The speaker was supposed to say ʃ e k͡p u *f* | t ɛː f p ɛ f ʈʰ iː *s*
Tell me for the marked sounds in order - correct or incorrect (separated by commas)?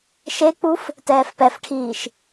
correct, incorrect